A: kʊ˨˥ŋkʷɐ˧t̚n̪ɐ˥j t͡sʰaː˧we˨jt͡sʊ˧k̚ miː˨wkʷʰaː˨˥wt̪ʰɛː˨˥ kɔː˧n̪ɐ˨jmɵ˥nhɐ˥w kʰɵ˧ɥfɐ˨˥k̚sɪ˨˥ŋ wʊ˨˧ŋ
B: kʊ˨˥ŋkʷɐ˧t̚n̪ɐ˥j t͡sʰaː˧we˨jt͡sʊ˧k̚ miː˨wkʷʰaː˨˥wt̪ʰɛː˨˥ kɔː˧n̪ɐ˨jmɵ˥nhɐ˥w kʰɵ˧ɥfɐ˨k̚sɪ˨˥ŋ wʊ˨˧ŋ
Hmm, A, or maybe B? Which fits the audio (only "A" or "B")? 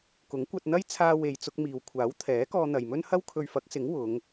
A